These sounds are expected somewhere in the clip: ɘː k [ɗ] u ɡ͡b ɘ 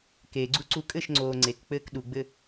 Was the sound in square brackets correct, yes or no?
yes